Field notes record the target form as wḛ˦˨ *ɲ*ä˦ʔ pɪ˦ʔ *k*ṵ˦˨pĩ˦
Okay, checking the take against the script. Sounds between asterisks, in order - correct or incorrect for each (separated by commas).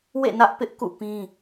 incorrect, correct